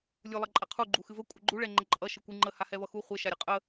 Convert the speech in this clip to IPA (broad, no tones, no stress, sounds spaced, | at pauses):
lʲ u lˠ ʌ ǃʼ a qʰ u ɡ͡ǃ u x ɨ v ə kʷʼ ə ɡ͡ǃ u ɭ ɛ ŋ͡ǃ ə ǃʼ ʌ ʃ ɛ kʷ ɨ ŋ͡ǃ ə h a h ɛ v ʌ x u χʷ ɛ ʃ a ɾʲ ʌ qʼ ə